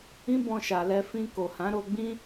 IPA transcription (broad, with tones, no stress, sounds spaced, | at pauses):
ĩ˦ b ɔ̃˧ ʃ a˨ l ɛ˧ f ĩ˧ k o˨ h ã˨˦ ɾ o˧ ɡ͡b ĩ˦